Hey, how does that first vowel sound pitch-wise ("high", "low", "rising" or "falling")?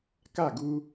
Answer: falling